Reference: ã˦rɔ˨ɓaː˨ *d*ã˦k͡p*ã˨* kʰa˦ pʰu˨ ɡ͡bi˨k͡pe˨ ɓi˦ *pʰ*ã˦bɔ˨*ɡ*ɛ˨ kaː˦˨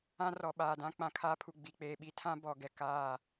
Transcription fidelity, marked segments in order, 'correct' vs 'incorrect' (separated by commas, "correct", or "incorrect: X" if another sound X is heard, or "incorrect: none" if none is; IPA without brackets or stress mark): correct, correct, incorrect: tʰ, correct